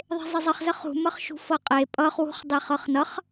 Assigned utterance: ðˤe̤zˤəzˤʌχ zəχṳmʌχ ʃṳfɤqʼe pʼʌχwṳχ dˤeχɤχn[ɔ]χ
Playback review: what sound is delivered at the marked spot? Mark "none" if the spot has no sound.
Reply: ʌ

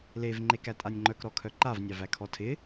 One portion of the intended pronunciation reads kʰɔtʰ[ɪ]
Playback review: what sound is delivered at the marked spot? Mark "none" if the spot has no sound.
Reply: ɪ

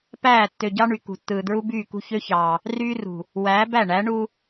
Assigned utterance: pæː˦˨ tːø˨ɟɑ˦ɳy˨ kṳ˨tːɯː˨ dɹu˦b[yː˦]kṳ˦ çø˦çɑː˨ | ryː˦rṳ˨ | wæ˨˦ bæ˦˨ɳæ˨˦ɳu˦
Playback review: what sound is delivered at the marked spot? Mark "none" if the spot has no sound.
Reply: yː˦˨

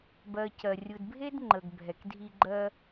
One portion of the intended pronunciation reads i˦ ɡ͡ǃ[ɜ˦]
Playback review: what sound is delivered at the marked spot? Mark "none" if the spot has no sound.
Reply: ɜ˦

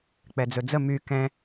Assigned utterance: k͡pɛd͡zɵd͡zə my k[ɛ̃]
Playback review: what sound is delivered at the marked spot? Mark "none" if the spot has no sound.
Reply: ɛ̃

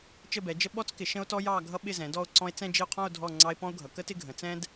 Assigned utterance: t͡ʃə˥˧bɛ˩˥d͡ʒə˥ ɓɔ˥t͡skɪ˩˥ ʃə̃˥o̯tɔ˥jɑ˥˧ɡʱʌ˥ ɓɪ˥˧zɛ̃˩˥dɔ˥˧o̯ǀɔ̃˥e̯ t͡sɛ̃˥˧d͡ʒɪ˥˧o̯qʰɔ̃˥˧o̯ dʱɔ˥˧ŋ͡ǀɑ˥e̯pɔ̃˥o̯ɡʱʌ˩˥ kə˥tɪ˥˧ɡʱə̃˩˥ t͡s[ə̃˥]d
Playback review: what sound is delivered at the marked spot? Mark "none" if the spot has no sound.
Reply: ɛ̃˥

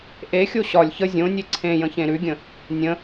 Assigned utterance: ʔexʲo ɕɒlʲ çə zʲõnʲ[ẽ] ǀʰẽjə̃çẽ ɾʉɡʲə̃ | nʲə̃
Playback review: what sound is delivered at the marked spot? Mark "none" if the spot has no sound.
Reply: e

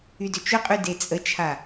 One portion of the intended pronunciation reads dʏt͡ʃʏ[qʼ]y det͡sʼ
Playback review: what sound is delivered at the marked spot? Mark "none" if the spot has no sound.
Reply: qʼ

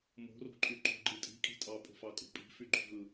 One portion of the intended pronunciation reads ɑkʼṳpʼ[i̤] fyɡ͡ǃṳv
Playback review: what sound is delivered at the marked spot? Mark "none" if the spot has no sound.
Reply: i̤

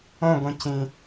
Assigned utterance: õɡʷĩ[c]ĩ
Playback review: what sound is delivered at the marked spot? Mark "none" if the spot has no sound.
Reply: c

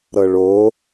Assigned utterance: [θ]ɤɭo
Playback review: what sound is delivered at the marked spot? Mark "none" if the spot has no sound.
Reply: ɾ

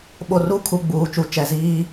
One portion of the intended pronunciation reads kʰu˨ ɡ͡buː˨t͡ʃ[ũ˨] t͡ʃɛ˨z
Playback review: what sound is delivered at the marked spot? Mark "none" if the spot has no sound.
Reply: u˨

